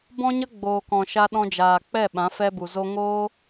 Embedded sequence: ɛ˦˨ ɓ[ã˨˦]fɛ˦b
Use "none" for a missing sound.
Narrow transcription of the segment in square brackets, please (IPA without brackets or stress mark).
ã˨˦